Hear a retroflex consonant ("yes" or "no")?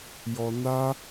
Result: no